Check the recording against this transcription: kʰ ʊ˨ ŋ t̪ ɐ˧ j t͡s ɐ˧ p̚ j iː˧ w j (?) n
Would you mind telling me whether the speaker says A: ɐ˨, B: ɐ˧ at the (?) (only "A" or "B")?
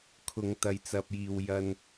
B